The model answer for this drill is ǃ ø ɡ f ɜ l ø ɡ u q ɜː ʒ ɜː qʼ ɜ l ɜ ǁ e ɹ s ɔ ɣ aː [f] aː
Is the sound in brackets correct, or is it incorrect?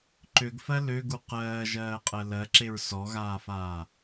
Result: correct